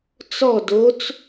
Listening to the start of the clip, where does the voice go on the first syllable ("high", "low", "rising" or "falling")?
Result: falling